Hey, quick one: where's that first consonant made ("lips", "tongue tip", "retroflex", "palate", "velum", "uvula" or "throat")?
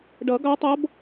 retroflex